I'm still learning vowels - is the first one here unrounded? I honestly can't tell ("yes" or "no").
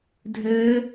yes